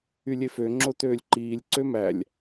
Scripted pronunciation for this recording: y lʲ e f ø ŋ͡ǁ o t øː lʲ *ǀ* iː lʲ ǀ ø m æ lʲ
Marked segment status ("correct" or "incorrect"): incorrect